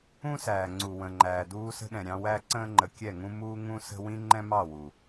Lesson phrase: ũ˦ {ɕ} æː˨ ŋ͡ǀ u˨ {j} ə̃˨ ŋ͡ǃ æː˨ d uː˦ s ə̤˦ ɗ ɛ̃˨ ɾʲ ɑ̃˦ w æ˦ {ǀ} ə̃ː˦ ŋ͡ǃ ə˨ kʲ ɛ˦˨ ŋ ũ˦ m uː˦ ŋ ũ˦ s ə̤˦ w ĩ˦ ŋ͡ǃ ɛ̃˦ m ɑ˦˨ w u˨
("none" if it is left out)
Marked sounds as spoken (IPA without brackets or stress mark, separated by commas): s, w, ǀ